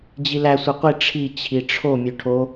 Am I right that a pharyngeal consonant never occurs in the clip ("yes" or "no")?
yes